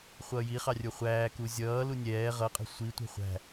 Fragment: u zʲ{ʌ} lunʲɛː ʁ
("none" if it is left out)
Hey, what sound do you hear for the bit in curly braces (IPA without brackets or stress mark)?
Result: ʌː